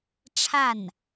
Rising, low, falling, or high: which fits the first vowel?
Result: falling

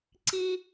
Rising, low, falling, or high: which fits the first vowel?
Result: high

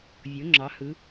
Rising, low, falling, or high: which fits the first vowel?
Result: rising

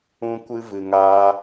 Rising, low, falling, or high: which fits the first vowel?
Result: high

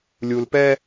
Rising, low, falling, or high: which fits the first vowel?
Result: low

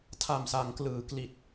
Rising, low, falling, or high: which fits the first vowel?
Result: low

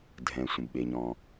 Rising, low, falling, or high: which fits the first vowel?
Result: low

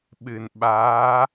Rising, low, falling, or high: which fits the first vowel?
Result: low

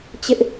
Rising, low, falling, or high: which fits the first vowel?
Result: high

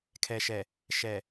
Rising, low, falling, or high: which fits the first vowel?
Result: low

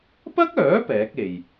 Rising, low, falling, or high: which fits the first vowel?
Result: high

